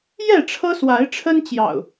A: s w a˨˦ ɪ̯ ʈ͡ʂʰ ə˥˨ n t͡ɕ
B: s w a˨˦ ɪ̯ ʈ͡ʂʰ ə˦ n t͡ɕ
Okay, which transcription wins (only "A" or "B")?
B